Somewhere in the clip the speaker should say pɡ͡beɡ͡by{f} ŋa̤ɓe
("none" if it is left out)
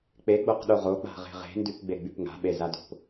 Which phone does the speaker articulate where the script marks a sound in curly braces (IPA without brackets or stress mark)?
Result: p